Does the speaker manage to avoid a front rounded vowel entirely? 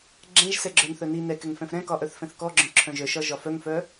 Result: no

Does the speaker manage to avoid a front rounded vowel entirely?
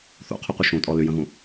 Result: no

